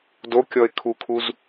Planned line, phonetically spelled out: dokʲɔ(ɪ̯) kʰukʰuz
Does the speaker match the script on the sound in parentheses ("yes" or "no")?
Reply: yes